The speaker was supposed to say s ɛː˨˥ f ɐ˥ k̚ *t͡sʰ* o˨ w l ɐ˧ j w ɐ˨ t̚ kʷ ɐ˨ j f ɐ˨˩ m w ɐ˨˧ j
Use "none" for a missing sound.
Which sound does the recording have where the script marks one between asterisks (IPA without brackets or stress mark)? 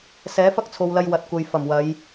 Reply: t͡sʰ